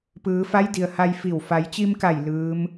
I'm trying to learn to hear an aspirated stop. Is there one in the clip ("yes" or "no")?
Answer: no